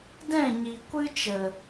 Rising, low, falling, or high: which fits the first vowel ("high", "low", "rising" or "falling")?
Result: falling